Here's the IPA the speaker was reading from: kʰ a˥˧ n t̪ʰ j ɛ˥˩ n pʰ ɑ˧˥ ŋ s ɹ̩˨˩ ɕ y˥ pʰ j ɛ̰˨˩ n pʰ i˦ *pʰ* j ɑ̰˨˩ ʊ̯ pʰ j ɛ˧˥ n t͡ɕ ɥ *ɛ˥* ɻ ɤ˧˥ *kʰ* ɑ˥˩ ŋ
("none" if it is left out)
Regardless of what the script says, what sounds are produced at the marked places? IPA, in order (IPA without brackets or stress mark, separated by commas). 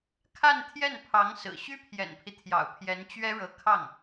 t̪ʰ, ɛ˥, kʰ